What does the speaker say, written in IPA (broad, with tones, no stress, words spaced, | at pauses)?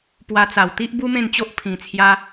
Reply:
pwa˧t͡sa˨˩wt̪i˦ʔ bu˦mẽ˥˧nt͡ɕo˦ʔ pʰĩ˧t͡sʰja˦